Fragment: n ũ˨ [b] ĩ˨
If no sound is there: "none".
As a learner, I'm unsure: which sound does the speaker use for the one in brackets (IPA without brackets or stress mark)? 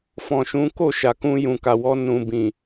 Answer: b